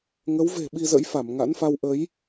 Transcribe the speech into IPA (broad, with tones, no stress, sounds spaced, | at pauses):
ŋ ə˨˦ w v e̤˨˩ ɓ i˧ z ə̰˧˥ j f a˧˩ m ŋ a̰˧˥ n f a˧ w ʔ ə˨˦ j